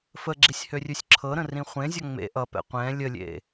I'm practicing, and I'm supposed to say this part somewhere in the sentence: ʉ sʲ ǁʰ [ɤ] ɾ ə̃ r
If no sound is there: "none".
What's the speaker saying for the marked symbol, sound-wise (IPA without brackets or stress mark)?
ɤ